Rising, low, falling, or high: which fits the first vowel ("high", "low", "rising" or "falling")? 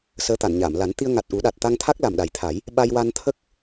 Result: rising